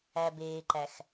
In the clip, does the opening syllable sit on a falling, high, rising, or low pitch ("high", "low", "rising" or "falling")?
low